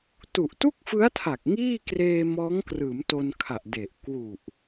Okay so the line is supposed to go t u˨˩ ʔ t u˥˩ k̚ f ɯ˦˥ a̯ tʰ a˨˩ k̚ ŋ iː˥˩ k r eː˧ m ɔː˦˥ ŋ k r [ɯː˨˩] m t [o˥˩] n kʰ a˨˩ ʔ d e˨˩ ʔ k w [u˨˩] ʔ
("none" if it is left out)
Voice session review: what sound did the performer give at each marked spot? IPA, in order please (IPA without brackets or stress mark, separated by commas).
ɯː˩˦, o˧, u˨˩